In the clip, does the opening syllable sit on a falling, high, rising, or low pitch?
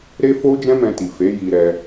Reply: high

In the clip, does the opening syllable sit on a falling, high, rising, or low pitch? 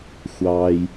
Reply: low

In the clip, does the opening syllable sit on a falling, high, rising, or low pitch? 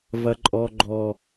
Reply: high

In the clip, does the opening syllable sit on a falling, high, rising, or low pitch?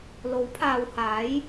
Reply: rising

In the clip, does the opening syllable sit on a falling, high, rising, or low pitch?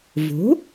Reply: rising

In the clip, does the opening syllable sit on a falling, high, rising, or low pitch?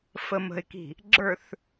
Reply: low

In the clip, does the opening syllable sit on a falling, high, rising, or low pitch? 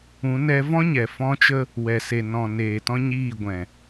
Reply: rising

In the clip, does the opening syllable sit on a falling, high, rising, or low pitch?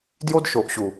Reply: high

